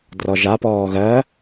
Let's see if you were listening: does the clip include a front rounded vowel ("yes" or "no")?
no